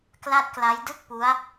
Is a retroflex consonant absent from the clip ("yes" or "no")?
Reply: yes